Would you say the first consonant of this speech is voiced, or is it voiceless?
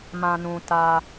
voiced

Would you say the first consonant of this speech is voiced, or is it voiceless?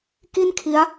voiceless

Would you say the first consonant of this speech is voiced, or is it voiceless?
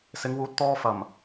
voiceless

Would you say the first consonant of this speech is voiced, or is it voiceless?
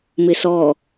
voiced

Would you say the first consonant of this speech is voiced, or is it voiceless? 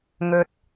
voiced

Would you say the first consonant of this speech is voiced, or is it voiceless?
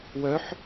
voiced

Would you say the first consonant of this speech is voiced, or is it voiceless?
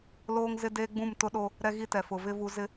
voiced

